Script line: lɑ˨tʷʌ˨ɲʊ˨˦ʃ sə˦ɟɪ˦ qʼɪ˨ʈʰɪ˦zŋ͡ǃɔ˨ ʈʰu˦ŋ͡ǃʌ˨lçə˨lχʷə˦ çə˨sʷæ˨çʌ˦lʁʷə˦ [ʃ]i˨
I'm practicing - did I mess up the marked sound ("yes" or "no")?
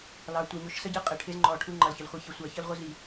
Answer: yes